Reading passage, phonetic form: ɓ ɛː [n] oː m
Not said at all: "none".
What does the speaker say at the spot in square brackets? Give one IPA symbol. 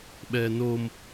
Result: n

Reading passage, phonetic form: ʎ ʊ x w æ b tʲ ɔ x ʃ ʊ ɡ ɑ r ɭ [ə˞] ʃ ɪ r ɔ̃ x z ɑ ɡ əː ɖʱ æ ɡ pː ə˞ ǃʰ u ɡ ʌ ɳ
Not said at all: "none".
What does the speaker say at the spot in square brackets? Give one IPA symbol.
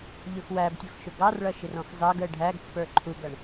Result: ʌ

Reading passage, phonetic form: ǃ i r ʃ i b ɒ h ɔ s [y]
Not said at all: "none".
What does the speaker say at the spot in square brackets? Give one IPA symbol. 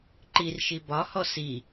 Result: i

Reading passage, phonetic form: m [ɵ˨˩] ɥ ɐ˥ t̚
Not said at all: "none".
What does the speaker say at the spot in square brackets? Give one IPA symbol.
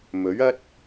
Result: ɵ˨˥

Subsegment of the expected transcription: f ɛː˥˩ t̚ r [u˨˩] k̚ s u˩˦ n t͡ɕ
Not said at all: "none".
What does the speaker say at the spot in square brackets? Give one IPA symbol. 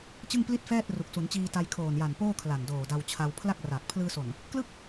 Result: u˨˩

